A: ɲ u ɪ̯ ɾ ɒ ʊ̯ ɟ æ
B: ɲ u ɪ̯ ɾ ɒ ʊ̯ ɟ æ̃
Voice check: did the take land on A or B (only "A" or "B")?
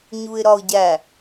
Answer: A